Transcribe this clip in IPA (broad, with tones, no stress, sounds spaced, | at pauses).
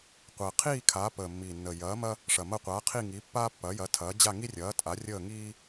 qʷ əː˨˩ qʰ iː˥˧ kʰ aː˨˥ p əː˨˩ mː iː˨˩ nː ə˨˩ j ɐː˨˥ m ɐ˥ | ʂ ɐ˨˩ m ɐ˥˧ qʷ aː˨˥ qʰ i˥˧ ŋ iː˨˥ pː aː˥ pː ɐː˨˥ j ɐ˨˥ tʰ ɐː˨˥ d͡ʑ a˥˧ ŋ i˥ rʲ ɐː˨˥ tʼ a˨˥ rʲ əː˥˧ ŋ iː˥